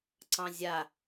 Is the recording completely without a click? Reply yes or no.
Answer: no